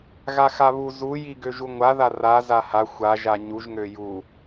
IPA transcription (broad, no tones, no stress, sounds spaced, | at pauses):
ɣ a x a β u z u j i ɡ ø ʒ u ŋʷ a ð a r a z a h a xʷ a ʒ a ɲ u ʒ ŋ ø j u